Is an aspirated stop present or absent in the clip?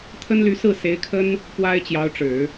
present